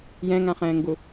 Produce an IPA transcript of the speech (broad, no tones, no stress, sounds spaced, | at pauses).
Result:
j ɛ̃ ŋ ã χ ɛ̃ː ŋ ɡ u